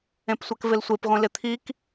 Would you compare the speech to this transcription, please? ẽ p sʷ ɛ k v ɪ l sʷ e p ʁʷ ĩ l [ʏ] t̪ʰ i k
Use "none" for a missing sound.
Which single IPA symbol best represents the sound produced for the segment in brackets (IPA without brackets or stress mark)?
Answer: ɪ